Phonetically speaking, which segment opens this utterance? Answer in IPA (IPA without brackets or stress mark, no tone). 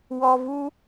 w